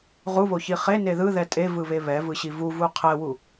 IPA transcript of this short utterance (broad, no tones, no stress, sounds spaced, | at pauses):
ʁ u β o ç i χ e n e ð ɯ ð ɛ tʼ e v ɯ β e β ɛ v ɯ ɕ i v u v u qʰ ɛ w u